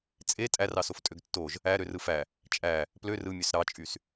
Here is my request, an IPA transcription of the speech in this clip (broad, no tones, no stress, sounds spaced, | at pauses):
t͡sʼ e tʼ æ r ɑ s o f tʼ ø ɡ tː o ʒ | æ ɾ ø r ɯ f æ | t͡ʃʼ æ | p l ø r ɯ mʲ ø s ɾ ɑ t͡ʃʼ y s